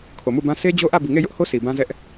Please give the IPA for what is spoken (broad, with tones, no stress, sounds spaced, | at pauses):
kʰ o˨ m u˦˨ b ã˦ sʰ e˦ d͡ʑ o˦ ʔ ä˦˨ b i˨ ŋ e˦˨ j ʊ˦ ʔ h o˦ s i˨ b ã˦ z ɛ˦ ʔ